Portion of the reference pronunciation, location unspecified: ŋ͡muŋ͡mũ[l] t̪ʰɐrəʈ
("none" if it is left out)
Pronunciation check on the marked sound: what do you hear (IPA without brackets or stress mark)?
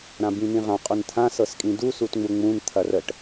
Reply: n